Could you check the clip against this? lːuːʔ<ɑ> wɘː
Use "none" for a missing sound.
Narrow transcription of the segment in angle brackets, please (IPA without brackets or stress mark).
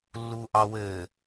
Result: ɑ